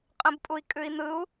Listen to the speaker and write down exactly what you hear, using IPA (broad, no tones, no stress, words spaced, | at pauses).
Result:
qʼə̃bpʼui̯kʼʉi̯n̪ɯu̯